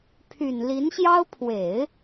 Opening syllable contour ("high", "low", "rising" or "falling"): low